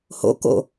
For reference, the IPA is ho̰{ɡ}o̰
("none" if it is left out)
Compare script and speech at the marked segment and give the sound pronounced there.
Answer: k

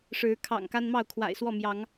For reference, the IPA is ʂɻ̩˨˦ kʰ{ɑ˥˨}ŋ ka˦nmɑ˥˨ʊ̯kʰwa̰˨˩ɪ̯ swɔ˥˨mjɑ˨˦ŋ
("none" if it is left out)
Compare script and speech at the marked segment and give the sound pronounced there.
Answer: ɑ̰˨˩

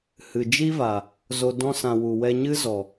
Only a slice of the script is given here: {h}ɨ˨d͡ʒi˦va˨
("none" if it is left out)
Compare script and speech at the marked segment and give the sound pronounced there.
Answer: h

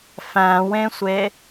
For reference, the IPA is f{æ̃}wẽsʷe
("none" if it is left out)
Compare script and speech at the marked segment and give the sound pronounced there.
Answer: æ̃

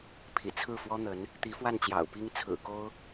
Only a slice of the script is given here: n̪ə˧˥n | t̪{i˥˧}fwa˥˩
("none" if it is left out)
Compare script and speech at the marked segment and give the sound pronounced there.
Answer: i˧˥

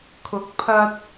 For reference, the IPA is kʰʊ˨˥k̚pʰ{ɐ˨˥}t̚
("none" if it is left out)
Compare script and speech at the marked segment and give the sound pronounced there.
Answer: ɐ˧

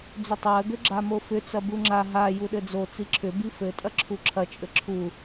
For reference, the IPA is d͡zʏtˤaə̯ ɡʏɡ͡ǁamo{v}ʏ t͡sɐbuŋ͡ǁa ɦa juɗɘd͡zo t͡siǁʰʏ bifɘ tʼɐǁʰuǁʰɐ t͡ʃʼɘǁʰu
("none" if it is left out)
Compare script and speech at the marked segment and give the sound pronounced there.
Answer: f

